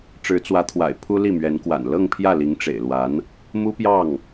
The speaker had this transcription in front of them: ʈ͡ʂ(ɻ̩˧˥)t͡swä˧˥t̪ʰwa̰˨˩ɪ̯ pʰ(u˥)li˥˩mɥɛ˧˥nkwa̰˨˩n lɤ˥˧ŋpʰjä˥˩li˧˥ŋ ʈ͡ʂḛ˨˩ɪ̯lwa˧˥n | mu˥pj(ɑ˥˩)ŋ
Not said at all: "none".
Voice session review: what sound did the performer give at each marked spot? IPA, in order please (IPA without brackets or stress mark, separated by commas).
ɻ̩˧˥, u˥, ɑ˥˩